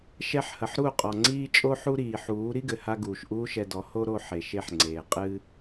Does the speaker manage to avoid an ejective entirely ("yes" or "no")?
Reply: no